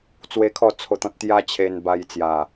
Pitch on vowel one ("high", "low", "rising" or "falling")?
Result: high